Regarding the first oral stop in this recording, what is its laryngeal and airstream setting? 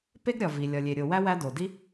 plain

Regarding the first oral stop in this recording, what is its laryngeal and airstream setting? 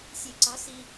click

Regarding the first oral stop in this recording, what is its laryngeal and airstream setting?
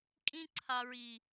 ejective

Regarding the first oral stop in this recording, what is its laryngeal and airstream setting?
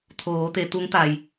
aspirated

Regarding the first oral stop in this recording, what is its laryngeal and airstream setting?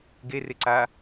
plain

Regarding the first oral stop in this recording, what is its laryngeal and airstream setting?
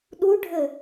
implosive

